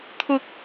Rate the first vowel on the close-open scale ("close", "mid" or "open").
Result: close